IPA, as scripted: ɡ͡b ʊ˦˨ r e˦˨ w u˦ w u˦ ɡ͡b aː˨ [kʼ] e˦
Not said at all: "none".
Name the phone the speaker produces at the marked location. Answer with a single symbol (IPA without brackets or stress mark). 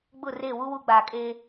kʼ